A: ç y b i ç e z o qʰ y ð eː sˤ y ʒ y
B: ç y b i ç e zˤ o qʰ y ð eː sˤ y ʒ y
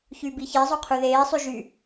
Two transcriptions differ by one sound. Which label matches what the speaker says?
B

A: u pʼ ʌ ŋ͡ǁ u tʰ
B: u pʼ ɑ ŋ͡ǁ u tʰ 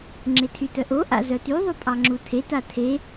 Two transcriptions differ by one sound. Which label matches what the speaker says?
B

